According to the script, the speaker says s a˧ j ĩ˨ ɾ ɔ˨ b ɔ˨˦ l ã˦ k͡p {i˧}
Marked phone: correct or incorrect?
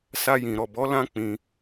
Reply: incorrect